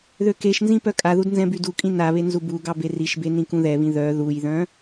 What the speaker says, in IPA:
ðøkeʃnzĩ pœkʼaðud nzɛ̃bydukʼĩ naβe nzubuɡɑ beriʃbe nĩkũðɛβĩ ðœ ðujðœ̃

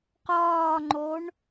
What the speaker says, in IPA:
qɒːŋ͡ǃoɳ

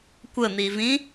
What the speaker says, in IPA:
kʷən̪ivĩ

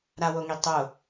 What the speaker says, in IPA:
ɾawoŋi tˤo

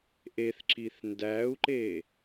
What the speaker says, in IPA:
ʔeθǁiθ ndæu̯ǃe

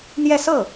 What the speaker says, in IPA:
n̪jɛ˥˧sɤ˥˩

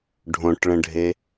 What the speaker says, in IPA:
ɖʱõʈɭə̃ɖʱe

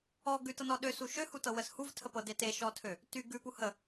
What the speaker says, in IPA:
ɔ ɡʉtɤnɔ ɗøsu ʃøhutɤwəs huvtʰəpɤde teʃɔtʰø | ty ɡʉpu hə

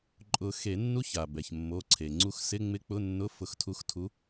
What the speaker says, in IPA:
ǃʼʊ˨˩˦ xe˨˩˦nːu˧˥ça˩ bɛ˩çmːo˩˧˩ ǀʰe˩ŋ͡ǀu˧x sɪ˧˥˧ ŋ͡mɪ˧˥k͡pʊ˧˥˧nːʊ˧˥˧ fʊ˧xtʰu˧˥xtʰu˧˥

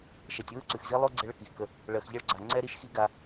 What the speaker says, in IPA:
ʃɛ˨tʲwɯ˦ǀʉ˨xzi˦ lˠo˦ ɡ͡ǀɛ˦ɭə˦ki˨xkə˦ | ɭɜ˨xʎɐ˦ɭɡ͡ǀa˨ ŋ͡ǀɛ˦ ɾi˦ʃxi˦ɡa˦

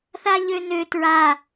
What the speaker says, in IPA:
θaʎønø tɹa

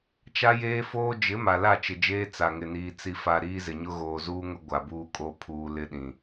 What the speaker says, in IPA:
t͡ʃa˦jeː˦foː˦ d͡ʒɪ˨˦ ma˨la˦˨t͡ʃɪ˨d͡ʒeː˦ t͡sa˨ŋɪ˨niː˨ t͡si˨fa˨ ɾiː˦zɪ˨ɲʊ˦ ɣoː˨zuː˦ŋʊ˦ ɡʷa˨buː˦kʼo˦ pʰuː˨ lɪ˦ɗĩ˨

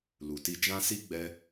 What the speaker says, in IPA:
lu˨ti˧d͡ʒã˦ si˦ ɡ͡bɛ˧

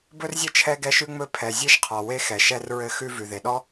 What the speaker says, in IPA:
bɵ˥rzʲɘ˥ t͡ʃʰɛ˥ɡɛ˥ʃʉ˥ ŋ͡mɵ˥˧ pʰɛ˩zʲe˥ʃ qʰɔ˩we˥xɛ˩ ʃɛ˥rɹɘ˥˧xʉ˥ vʉ˩ðe˩ɗɔ˥

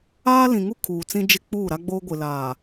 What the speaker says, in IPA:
aː˦lĩ˨ŋu˦ kʰuː˨t͡sĩ˦d͡ʒɪ˦˨ k͡puː˦˨ɾa˦ɡ͡boː˦ ɡʷɪ˨laː˨

